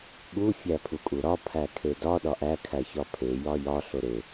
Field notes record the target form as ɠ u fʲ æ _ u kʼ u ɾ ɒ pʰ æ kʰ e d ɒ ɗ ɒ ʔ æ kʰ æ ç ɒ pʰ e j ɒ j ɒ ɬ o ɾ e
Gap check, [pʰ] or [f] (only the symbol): pʰ